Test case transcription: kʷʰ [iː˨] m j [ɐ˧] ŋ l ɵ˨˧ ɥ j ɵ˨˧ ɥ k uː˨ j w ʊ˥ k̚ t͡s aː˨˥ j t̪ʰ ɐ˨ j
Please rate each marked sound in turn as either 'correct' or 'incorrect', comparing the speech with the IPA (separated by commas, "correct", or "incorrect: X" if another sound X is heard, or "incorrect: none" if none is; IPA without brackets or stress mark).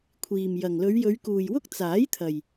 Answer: correct, incorrect: ɐ˨